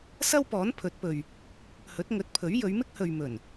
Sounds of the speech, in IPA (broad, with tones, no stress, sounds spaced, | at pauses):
s ɐ˥ w p ɔː˨˥ n pʰ ɵ˨˥ t̚ p ɵ˨ ɥ | h ɵ˨˥ t̚ ŋ ɵ˨˥ t̚ pʰ ɵ˨˥ ɥ j ɵ˨˧ ɥ m ɪ˥ k̚ h ɵ˨ ɥ m ɵ˨˩ n